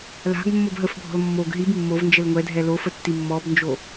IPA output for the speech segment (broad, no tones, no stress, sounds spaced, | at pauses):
l a̤ ɡ mː o b ɦ ə f bʱ ɔ̤ l mː o ɡ ɦ i b mː o v n d͡ʒ ə l ŋʷ ɛ dʱ ɛ l o f ə tː i mː ɔ b n d͡ʒ o